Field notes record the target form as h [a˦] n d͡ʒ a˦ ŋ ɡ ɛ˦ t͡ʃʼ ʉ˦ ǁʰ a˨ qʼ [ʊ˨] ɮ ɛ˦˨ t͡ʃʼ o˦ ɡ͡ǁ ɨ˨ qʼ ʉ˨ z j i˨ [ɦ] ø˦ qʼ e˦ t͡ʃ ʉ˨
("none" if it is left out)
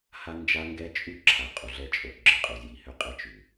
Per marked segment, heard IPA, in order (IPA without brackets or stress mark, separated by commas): a˦, u˨, h